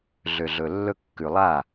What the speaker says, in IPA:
ɮ ø˨ ɮ ɵ˨ lː ɵ˧ kː ʉ˨ lˠ a˦˨

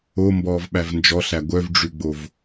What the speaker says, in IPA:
o m b ɔː v ɓ æ v n d͡ʒ ɔ ɬ æ ɡʷ œ v ɖ͡ʐ ʉ ɡ͡b o v

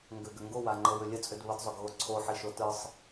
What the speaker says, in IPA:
ŋ ɡ ʏ ɡ ʏ ŋ ɡ o w a ŋ͡ǃ ɤ w ʏ lʲ ə t͡sʼ ʏ d β ə d zˤ ʏ ɡ ɣ o ǀʰ o ħ i ʃ o t ɯ sˤ

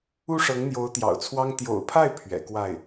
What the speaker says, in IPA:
u˥ ʂ ɤ˧˥ ŋ n̪ j o˧˥ ʊ̯ t̪ j ɑ̰˨˩ ʊ̯ t͡sʰ w ɑ˥ ŋ t̪ j o̰˨˩ ʊ̯ pʰ a˥˩ ɪ̯ pʰ ɥ ɛ̰˨˩ k w a˥˩ ɪ̯

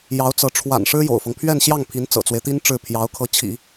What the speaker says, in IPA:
j ɑ˧˥ ʊ̯ t͡s ɤ˧˥ ʈ͡ʂʰ w a̰˨˩ n ʂ ɻ̩˥ j o̰˨˩ ʊ̯ f ɤ˦ ŋ pʰ ɥ ɛ˥˧ n ɕ j ɑ˥˩ ŋ pʰ i˧˥ n t͡s ɤ̰˨˩ t͡s w e˦ ɪ̯ t̪ i˥ n ʈ͡ʂ ɻ̩˥˩ pʰ j ɑ˧˥ ʊ̯ kʰ ɤ˧˥ t͡ɕʰ ḭ˨˩˦

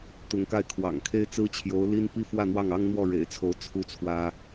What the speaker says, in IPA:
t̪ ʊ˧˥ ŋ k a˥˩ ɪ̯ kʰ w ɑ̰˨˩ ŋ kʰ e˥ ɪ̯ t͡s ɹ̩˥ t͡ɕʰ j o˧˥ ʊ̯ l i˥ n p i˥˧ f w ä˥˧ n̪ w ɑ˥˩ ŋ ɑ˥ ŋ n̪ w ɔ˥˩ ɻ ḛ˨˩ ɪ̯ t͡sʰ o˧˥ ʊ̯ t͡sʰ u˥ t͡sʰ w ä˥

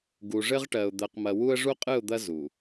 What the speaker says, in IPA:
ɡ u˨ ʐ ɘ˦ ʁ ʈ ɜ˨ ʊ̯ d̪ ɜ˨ q m ɐ˨ w u˦ ə̯ ʐ u˦ qʼ ɨ˦˨ ʊ̯ d̪ ɐ˦ z u˨

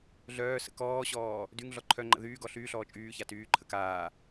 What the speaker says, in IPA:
ɮ œː s ə̰ k ɔː ɕ ɔː | d y ŋ ɮ ɔ ǃʰ œ ŋ͡ǃ ə̰ ð yː ɡ ɔ ɬ yː ɬ ɔː t͡ʃʼ yː ç a t yː ǃʰ ə k aː

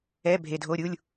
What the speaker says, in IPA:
ɛ˧˥˧ bʱ e˨ dʱ o˧˥˧ ɾʲ u˧˥˧ lʲ

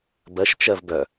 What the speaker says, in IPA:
b ɜ ʃ t͡ʃ ɜ v b œ

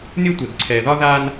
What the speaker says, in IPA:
nʲ ɤ˦ tʷ ɛ˨ ɡ ǀʰ ɛː˨ ð ɒ˦ ð aː˦ n

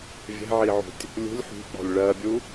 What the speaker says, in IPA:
vʲ ɛ̤ ʕ i ʕ ṳ tʲ | lʲ ṳ lʲ ħ ṳ k͡p ɔ̤ lʲ ɭ ɜ bʲ u

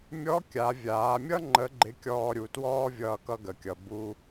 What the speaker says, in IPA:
mʲ ɔ˧˥ kʲ a˩˧ vʲ aː˩˧ mʲ ʌ˥ ŋ͡ǃ ə˧˥ ɡ͡ǃ ɪ˧˥ kʲ ɔː˧ ɾʲ u˩˧ t w ɔː˥ vʲ ʌː˧ k ʌ˧ ɡ ə˩ kʲ ʌ˩ b u˧

